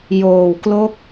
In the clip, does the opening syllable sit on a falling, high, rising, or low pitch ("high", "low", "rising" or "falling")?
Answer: low